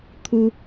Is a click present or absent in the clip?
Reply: absent